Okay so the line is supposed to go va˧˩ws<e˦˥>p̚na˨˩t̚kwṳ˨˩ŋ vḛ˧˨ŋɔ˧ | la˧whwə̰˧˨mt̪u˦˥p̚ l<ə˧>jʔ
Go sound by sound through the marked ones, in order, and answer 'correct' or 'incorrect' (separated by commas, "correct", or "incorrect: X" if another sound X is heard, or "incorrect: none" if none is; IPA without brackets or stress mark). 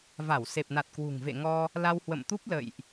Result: incorrect: e˨˩, incorrect: ə̰˧˨